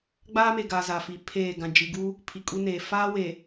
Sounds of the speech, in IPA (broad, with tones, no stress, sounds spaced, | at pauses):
ɡ͡b aː˦ m e˨ ɡ aː˨ z a˨ f i˨ pʰ eː˦˨ ɡ ã˨ d͡ʒ i˨ ɡ u˦ | pʰ i˨ kʼ u˦ n eː˨ f aː˦ w e˨